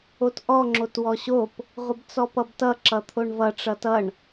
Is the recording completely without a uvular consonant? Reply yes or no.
no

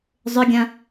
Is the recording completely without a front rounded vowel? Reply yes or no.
no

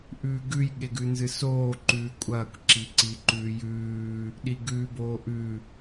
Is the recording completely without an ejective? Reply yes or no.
no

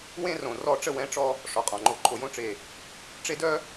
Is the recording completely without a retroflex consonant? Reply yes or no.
no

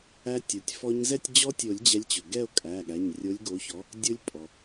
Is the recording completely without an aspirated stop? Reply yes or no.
yes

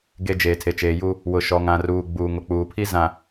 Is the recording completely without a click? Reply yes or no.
yes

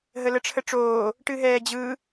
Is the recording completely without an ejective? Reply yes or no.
yes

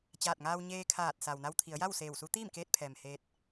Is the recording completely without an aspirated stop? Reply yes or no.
no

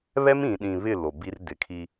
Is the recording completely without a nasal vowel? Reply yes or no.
no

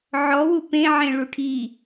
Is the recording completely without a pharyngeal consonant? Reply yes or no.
no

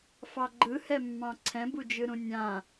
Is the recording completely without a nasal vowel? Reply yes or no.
no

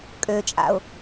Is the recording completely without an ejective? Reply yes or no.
no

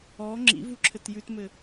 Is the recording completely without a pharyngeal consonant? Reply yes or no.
yes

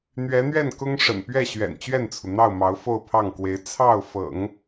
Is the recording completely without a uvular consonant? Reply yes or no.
yes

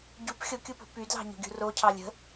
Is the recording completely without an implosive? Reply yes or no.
yes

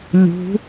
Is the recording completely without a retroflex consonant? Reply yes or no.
yes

